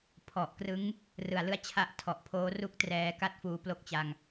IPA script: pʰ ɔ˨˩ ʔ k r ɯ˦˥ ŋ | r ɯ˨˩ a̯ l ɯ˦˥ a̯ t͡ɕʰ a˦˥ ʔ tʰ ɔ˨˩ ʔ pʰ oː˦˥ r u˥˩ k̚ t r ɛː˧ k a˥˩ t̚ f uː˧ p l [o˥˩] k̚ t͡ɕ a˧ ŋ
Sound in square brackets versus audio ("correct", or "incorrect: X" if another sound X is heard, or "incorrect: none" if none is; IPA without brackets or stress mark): correct